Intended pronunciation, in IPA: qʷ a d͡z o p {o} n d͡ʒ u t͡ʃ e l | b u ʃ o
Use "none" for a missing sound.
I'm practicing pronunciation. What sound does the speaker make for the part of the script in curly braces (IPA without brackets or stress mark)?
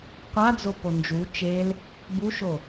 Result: o